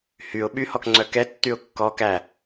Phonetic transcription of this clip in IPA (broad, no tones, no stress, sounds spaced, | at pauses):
h y ʊ̯ ɓ y h ɔ k ŋ͡ǀ œ k ɛ tː y ʊ̯ kː ɔ k æ